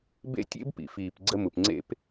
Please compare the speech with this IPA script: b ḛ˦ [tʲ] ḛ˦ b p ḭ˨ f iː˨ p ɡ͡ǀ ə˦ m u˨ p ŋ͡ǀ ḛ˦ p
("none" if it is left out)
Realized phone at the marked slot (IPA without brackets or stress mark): tʲ